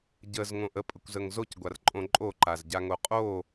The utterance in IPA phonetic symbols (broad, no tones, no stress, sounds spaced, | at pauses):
ɟ ə z ŋ õ ʔ ə pʼ ə kʷ z ə ŋ z o c ɡʷ a r ǃʼ õ ǃʼ o ǃ a z ɟ a ŋ o qʼ o